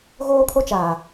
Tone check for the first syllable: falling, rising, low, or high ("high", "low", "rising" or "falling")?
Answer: high